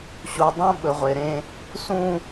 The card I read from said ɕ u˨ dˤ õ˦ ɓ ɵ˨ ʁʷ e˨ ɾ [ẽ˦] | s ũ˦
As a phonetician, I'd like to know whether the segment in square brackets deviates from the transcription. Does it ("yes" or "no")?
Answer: no